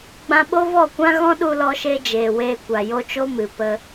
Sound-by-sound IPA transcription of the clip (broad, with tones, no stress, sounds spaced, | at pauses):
ɡ͡b ã˧ ɓ o˦ v ɔ˦˨ kʷ ã˦ ɣ ɔ̃˦ ɗ u˧ l ɔ˧ ʃ e˧ d͡ʒ eː˨ w eː˧ kʷ a˨ j o˦ t͡ʃ o˦ m ɨ˨ p ə˦